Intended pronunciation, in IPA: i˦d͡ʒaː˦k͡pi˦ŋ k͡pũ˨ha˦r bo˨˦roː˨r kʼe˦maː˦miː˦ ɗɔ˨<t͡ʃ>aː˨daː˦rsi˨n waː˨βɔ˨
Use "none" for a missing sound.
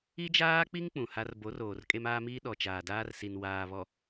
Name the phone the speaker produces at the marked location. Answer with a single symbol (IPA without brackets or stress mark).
t͡ʃ